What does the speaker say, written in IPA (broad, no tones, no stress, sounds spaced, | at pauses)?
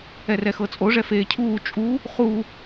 ɛ r ɛ x ɤ t͡sʼ o ʐ ɛ f eː cʰ uː t͡ʃʼ u | χ u